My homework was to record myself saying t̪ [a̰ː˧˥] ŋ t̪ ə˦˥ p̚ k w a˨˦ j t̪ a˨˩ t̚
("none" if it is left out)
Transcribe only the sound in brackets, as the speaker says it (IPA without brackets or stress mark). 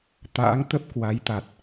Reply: a̰ː˧˥